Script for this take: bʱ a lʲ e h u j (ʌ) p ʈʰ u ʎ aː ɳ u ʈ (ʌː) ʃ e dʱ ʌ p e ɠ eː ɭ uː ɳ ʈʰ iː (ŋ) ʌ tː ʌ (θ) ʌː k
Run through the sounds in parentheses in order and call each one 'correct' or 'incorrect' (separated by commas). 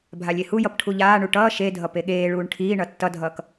correct, correct, incorrect, incorrect